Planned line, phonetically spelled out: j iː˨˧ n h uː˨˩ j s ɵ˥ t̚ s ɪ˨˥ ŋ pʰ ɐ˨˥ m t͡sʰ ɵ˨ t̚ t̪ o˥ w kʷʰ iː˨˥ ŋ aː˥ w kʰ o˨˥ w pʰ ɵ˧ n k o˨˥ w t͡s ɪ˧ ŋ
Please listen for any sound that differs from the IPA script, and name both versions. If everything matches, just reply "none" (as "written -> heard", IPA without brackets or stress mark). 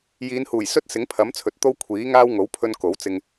kʰ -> ŋ